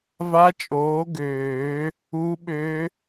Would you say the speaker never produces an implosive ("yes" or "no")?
no